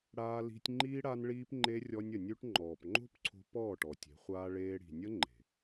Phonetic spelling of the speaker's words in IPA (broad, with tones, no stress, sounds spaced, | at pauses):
ɽ aː˧ l i̤˧ tʲ ŋ͡ǃ iː˦ ɽ a˧ n ɭ iː˧ p ŋ͡ǃ e˧ rʲ ɔ˧ nʲ ə˨ nʲ ʉ˧ ʈ ŋ͡ǃ ɔː˨ p ŋ͡ǃ o̤˦ p ǀʰ o̤˧ p ɔː˦˨ ʈ ɔ˨ tʲ e̤˨˦ χʷ aː˦ ɭ eː˦ ɽ i̤˨ nʲ ə˦ ŋ͡ǃ e̤˨